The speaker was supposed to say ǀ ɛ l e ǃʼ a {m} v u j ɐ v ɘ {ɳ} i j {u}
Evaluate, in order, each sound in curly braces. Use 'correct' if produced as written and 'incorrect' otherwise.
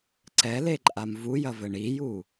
correct, correct, correct

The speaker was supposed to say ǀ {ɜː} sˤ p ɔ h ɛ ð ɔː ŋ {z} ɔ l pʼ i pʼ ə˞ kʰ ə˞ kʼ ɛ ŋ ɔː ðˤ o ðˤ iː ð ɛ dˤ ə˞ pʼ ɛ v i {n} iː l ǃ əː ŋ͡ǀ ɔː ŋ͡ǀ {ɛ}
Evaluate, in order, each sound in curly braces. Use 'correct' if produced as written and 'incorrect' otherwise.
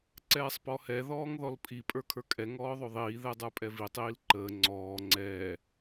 incorrect: ɛː, incorrect: ð, incorrect: tˤ, incorrect: ɛː

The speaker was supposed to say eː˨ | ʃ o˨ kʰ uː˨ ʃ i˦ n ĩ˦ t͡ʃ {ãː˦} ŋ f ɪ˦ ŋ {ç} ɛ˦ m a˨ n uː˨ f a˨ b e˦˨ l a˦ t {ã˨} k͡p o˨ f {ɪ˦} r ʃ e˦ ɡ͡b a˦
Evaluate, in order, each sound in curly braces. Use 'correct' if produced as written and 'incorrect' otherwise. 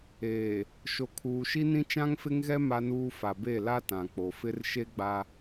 incorrect: ã˦, incorrect: ɣ, correct, correct

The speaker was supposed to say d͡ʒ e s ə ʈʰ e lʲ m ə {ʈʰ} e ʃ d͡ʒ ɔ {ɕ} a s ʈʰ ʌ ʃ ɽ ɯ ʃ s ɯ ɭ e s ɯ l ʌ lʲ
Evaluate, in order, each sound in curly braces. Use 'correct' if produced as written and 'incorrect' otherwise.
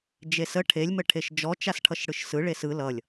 correct, incorrect: t͡ʃ

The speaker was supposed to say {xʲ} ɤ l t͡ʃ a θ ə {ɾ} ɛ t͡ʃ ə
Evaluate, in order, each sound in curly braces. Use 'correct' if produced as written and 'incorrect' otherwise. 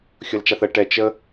correct, incorrect: ʈ

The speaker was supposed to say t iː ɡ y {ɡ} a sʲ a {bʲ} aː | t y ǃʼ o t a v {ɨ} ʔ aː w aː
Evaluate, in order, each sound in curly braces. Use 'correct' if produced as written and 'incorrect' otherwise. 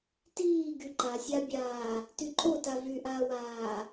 incorrect: ǃ, correct, incorrect: y

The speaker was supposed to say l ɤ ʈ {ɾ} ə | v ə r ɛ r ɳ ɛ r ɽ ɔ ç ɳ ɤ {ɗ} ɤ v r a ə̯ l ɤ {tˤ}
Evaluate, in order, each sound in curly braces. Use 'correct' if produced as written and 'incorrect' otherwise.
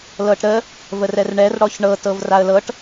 correct, incorrect: t, incorrect: ʈ

